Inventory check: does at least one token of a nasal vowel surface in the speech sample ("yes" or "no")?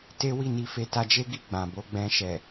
yes